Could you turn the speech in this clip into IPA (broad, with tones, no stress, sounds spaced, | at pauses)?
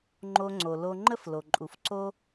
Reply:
ŋ͡ǃ o˧ ŋ͡ǀ o˨ l o˧ ŋ͡ǃ ə˦ f l o˨ ǃʼ u˨ f ǀ o˦